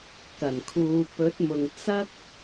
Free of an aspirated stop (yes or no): no